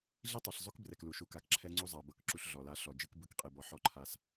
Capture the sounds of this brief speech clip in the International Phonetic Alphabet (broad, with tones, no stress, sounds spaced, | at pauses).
ɮ i˦ tˤ ɤ˨ ɬ zˤ o˦ k b r ɛ˨ k l u˨ ʃ u˨ k a˨ k ǁʰ ɛ˦ ŋ͡ǀ u˦ zˤ a˨ b ɤ˦ k ǁ u˦ ɬ ɮ ɔ˨ l a˦ ɬ ɔ˨ d͡ʒ ɯ˦ k b ɯ˦ k qʼ e˦ b ɔ˦ ħ ɔ˦ ǃʰ a˦ s